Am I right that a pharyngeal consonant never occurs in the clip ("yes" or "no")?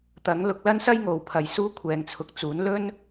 yes